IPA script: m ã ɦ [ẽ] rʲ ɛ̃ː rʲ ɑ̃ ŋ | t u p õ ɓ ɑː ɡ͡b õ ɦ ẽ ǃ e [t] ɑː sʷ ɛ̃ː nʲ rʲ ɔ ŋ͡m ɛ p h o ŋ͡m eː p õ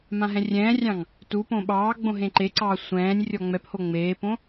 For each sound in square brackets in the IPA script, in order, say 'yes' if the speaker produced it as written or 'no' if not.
no, no

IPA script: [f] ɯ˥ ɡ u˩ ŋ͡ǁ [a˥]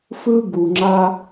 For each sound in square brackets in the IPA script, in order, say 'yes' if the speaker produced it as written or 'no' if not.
yes, yes

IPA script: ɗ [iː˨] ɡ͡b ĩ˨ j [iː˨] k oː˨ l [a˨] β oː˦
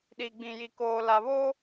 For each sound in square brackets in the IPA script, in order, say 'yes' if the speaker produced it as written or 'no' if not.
no, no, yes

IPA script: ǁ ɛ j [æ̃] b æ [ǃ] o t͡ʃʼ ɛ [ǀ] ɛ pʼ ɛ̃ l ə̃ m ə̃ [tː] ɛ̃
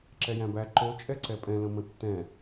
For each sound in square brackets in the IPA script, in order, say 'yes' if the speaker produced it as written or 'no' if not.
yes, yes, yes, yes

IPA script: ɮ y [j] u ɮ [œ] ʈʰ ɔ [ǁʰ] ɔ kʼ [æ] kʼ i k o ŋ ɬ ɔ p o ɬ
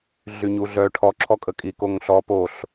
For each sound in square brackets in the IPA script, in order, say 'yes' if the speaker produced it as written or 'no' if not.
no, yes, yes, no

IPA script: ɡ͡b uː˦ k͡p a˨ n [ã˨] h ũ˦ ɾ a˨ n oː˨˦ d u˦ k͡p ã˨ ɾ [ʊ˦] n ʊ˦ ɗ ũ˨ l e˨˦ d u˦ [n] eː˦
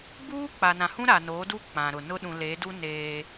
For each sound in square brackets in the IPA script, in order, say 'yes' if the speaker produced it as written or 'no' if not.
yes, no, yes

